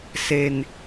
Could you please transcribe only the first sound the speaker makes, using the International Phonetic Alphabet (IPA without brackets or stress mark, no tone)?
s